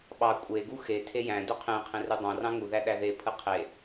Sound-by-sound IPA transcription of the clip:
ɓɑ kʷʼeɡu xetʰe jæ̃ duqʰẽqʰẽr udˤɑ̃rɑ̃ ŋuðæ ɗæðepʰɯ qʰe

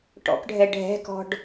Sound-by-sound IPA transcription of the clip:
ʈɔ̰kɖʱɛ ɖʱɛ̤kɔ̤ɖ

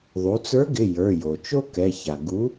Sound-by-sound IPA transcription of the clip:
ðˤu˩˧t͡sə˞˨˥ɡɪ˩˧˩ jə˞˩˧˩jo˩t͡ʃo˥ kɛ˩˧˩ça˩ ɡu˨˥

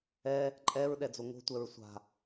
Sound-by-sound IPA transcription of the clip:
ɛ | ǃʼɛɹ ɗɛd͡zoŋo̤tʷɛɹ sʷa̤

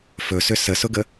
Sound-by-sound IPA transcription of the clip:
fɵsʏ səsʊɡə

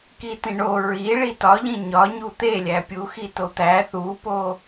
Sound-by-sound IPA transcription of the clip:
kitĩɳo ɹi ɭitɒʎĩ ɲɒ ɲut̪elʲæ pʲuxi tot̪æ θupo

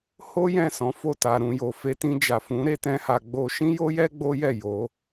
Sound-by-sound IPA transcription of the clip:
ho˦ jɛ̃˦˨ sɔ̃˨˦fo˦˨ta˨ ɾũ˨jo˨fe˧ tĩ˧d͡ʒa˨fũ˨˦ ɾe˦tɛ̃˦ha˧ɡ͡bo˦ ʃĩ˦jo˦jɛ˦ ɡ͡bo˦jɛ˦˨ jo˨˦

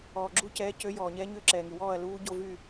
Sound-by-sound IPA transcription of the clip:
ɔː˨ɡ͡ǁu˥˨cɛː˧˥ cø˧˥jɔː˨ɲɛ˧˥ɲø˥˨ ǁɛː˨ŋy˨wɔː˥˨ɐ̯ luː˧˥ɟo˥˨vy˥˨

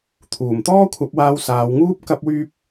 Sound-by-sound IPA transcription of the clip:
t̪ʰuː˨˩m t̪ɔː˥kʷʰɐ˨˥p̚waː˧w saː˨˧wŋuː˥p̚ kɐ˥p̚wyː˥p̚

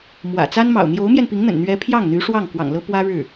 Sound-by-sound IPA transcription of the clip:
mwä̰˨˩t͡sa˥nmɑ̰˨˩ʊ̯ n̪jo˧˥ʊ̯mjɛ˧n pi˧˥ŋn̪ə̰˨˩nn̪ɥɛ˧˥pʰjɑ˥˩ŋ n̪y˧˥ʂwɑ˥˩ŋ kwɑ̰˨˩ŋlɤ˥pwä˥ ɻɻ̩˥˩

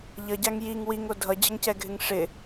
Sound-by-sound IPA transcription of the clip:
ʎʌɟaŋ jiŋ wiŋo dʱʌd͡ʑʌŋcɛɡʱɪŋ ʂɪ

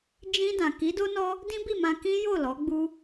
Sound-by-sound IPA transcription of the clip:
d͡ʒĩ˧dã˨ ki˨˦do˦nɔ˦ | dĩ˦bi˦˨mã˧ kĩ˦jo˦˨lɔ˨˦ɡ͡bu˦

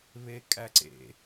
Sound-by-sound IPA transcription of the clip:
βekʼæǀḛ

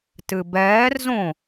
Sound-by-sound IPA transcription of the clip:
tɨbɛːrzõ

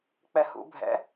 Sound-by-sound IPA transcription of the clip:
k͡pɛhṵ bʱɛ̰

